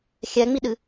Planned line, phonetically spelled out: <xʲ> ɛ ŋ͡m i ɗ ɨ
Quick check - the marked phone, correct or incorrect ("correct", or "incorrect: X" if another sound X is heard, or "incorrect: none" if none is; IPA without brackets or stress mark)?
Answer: correct